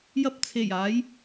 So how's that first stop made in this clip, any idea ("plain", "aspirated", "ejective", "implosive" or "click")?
plain